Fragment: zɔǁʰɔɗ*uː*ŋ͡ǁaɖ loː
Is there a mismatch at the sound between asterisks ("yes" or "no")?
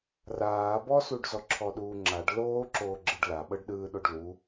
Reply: no